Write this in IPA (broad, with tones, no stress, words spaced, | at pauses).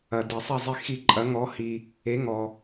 ɐ˩de˩ sˤɐ˥˩zˤi˧xi˧ ǃʼɐ˩˥ŋɔ˩˥hi˩ | e˩˥ŋɔ˩